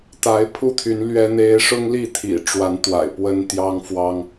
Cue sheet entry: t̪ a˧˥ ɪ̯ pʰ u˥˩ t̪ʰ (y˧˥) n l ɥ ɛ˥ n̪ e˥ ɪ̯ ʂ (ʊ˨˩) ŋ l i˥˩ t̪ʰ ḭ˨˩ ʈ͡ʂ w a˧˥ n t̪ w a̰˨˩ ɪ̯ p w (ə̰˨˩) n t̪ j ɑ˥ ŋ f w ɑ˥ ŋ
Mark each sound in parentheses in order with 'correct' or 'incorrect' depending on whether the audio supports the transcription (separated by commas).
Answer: correct, incorrect, incorrect